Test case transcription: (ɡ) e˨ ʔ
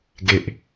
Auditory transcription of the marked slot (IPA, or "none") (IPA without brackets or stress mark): ɡ